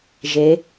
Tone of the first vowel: rising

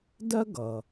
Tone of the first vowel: high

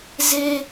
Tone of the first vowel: high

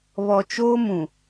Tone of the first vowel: low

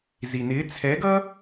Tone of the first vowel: low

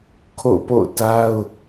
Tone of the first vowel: falling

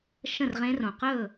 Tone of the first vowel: falling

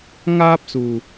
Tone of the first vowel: high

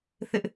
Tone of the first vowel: high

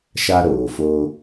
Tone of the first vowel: high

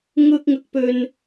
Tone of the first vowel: low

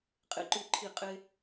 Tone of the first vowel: high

